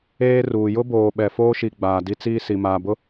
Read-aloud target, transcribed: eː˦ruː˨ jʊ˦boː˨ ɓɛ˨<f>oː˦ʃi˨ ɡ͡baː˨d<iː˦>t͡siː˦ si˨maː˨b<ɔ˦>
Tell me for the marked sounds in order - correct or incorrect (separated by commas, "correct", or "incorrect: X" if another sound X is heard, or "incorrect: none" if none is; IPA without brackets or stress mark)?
correct, incorrect: i˦, incorrect: ʊ˦